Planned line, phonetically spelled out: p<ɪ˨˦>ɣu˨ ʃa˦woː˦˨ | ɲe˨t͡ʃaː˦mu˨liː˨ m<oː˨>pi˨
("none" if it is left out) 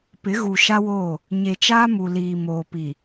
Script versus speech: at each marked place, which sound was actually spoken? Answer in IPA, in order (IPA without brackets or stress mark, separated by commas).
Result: ɪ˨˦, oː˨